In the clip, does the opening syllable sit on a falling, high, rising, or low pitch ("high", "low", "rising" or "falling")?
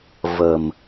low